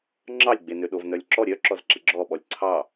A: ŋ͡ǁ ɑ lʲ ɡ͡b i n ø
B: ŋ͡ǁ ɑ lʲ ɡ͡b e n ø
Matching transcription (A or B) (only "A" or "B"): B